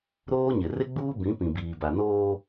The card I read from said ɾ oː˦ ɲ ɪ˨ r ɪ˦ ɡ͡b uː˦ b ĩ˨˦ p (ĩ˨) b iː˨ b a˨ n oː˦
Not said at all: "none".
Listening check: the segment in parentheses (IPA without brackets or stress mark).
ĩ˨